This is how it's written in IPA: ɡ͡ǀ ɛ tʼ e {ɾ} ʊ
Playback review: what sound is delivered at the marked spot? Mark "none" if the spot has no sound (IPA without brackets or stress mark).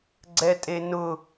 n